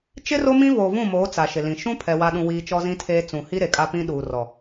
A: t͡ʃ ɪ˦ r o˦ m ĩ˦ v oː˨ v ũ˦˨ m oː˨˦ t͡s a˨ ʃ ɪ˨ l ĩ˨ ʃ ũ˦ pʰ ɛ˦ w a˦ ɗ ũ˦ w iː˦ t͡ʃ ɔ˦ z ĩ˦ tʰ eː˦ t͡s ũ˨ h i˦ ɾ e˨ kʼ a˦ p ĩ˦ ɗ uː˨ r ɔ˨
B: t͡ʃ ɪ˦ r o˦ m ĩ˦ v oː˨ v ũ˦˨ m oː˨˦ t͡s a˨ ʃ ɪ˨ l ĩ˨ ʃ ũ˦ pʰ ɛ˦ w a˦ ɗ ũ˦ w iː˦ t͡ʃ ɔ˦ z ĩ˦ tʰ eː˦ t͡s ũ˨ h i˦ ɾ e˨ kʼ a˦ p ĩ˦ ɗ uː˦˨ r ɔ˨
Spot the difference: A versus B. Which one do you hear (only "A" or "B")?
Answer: A